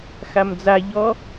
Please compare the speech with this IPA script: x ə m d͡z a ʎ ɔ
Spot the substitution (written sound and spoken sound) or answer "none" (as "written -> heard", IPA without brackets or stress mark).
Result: ə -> a